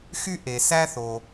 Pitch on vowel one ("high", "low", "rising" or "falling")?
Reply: high